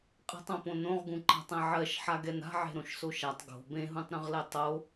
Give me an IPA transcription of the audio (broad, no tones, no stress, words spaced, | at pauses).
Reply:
qʼə̤tˤõpõ nõʁɡũǃa̤tˤɛ̃ ʕɜʃħaɡɛn a̤ʕe̤ɾõʃso ʃatˤ ɡo̤ bẽɦũtˤɾõʁlɛ tˤo